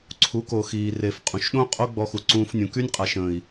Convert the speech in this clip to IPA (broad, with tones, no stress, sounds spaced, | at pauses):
ǀʰ u˨˦ k o˨ x iː˨ r e˨ f qʼ ũ˨ ʃ ɗ õ˦ qʼ o˦ ɡ͡b ɔ˧ x u˨ ǀ ũː˧ f nʲ ũ˨ k y˦ nʲ qʼ a˨ ʃ ə̃ː˨ i̯